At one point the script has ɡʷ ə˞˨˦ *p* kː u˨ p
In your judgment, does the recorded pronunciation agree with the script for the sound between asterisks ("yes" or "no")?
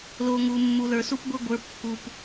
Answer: yes